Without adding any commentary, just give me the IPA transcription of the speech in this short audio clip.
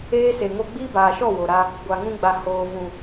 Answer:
eː˦se˨ŋo˦ ɡ͡biː˦baː˨ʃɔ˦˨ wo˨ɾa˦ | ɡʷa˨ŋũ˦ɡ͡ba˨ hoː˨ vũ˨

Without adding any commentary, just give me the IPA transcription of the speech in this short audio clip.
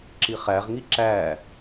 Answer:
ǁiχæʁŋi ǁæ

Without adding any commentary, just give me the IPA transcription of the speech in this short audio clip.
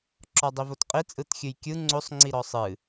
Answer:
ǁɔdˤivotqʼi t͡sʼɯtxʲɨjkʲɯ ŋ͡ǀosˤ ŋ͡ǀiɾɔsˤɨ

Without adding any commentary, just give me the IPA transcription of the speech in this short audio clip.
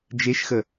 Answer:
d͡ʒeʃxə

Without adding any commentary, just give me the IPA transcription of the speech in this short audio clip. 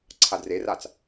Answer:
ǀʰadreraːt͡s

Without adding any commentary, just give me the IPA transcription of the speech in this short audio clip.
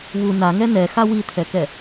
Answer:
wu naŋɛ nɛxa wit̪ʰɛkɛ

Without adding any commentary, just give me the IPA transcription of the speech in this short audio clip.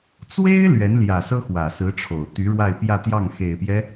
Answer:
t͡swe˥ɪ̯ lɥɛ˧˥nljä˨˩sɤ˥ xwä˨˩sɹ̩˧˥ʈ͡ʂʰo˨˩ʊ̯ t̪y˧˥ɻwa˥˧ɪ̯pjä˥˧t̪jɑ˥˩ŋ xe˨˩ɪ̯pjɛ˦

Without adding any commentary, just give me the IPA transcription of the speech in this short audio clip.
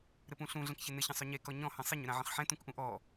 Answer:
ɾɘpũɬũ ɮə̃kçɘnɘ çə̃sˤɵɲe kɔɲɔ̃ hə̃sˤəɲ ʏɾãʕə̃χħɛ̃ tũkʔũʔɔ

